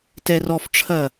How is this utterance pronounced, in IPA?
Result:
tɛrɔfʈ͡ʂʰɐ

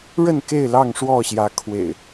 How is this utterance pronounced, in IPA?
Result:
ɻə˥˨nke˥˨ɪ̯lɑ˥˨ŋ ʂwɔ˥˨ɕjä˨˦kʰwḛ˨˩ɪ̯

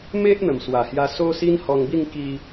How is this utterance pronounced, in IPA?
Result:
me˦ʔ n̪ə˨˩mswa˨˩hja˧ so˦ si˦nhɔ˧ŋbi˥˧ŋ ki˧

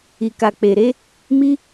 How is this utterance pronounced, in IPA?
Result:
i˨ka˨k͡pe˨ɾe˨˦ | mi˦

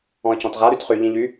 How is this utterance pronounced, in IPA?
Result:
ɔ̃ə̯cɔ̃tʁa ɾytχy ʎĩʎy

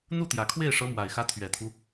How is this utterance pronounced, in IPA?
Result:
n̪u˥˩t̪jä˨˩kʰwe˥˩ɪ̯ ʂɤ˧˥mwa˨˩ɪ̯xä˧˥ t̪ʰɥɛ˨˩t̪ʰu˦

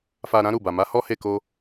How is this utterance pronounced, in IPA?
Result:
fa˨ ɾã˨˦ɾu˦˨ba˨ma˨˦ hɔ˦he˦˨ ko˧

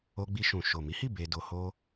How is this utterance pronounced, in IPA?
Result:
o˧ɡ͡bi˧ʃũ˨ ʃo˨mi˨˦hi˦˨ be˧do˧ho˦

